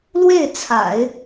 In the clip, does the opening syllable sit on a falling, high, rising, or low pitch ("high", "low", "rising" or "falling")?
falling